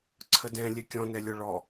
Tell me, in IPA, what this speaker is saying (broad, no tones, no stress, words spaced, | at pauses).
ǀʰədɛ̃ lʲɛkʲɔ̃nɛlʲɔ ɭɔ